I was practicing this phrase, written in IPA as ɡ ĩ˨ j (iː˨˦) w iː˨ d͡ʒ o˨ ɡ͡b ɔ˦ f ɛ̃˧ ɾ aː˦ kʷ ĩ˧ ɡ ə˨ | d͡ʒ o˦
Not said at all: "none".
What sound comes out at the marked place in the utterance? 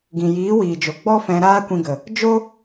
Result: iː˨˦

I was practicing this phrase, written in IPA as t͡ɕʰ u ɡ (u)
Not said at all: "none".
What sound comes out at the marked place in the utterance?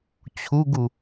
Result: u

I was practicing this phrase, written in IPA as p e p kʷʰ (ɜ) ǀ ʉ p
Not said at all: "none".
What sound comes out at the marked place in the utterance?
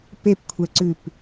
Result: ɛ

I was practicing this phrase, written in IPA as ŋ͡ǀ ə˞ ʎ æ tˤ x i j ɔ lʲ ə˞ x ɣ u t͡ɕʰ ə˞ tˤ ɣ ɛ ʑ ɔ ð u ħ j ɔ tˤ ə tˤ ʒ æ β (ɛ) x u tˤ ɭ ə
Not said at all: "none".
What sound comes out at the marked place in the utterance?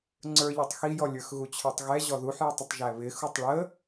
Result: ɪ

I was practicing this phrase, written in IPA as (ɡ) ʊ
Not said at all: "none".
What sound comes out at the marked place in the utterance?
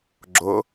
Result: ɡ͡ǁ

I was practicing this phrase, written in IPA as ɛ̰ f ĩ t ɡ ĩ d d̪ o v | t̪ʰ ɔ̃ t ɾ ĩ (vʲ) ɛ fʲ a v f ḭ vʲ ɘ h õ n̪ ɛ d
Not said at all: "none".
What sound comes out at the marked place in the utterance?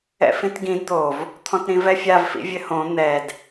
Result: v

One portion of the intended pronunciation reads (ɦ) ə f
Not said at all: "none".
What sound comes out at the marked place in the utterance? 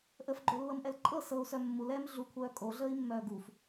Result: ʔ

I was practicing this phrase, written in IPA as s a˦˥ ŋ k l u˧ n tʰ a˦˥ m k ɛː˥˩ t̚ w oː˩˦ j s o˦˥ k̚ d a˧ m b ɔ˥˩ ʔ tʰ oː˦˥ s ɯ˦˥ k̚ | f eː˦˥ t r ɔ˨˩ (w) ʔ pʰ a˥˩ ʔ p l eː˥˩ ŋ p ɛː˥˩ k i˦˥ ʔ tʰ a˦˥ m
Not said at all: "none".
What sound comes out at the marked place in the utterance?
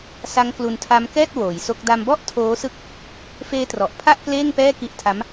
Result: none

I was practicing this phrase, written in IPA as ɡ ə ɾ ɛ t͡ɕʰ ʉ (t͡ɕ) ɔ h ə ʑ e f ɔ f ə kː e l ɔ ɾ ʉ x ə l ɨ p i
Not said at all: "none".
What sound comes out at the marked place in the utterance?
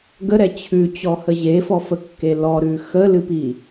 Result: t͡ɕ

